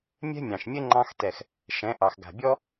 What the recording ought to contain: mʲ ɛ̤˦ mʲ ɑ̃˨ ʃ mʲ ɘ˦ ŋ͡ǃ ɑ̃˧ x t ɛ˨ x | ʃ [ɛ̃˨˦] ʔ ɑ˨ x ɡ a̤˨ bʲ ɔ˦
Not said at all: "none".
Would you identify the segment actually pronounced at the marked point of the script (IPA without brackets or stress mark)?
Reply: ɛ̃˨˦